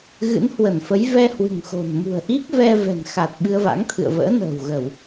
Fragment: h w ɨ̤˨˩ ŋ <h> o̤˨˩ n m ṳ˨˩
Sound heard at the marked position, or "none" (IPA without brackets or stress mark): x